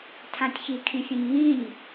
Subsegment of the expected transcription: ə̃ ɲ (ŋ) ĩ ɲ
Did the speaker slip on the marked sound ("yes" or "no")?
no